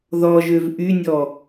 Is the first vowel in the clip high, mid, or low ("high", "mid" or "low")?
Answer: mid